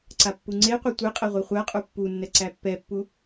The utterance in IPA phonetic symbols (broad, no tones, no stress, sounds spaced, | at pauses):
ǀ a pː u ŋ͡ǀ e qʷ e tʷ e qʼ ɛ ʁʷ ɛ χʷ æ qʼ u pː u nː ɛ ǀ æ pː ɛ pː u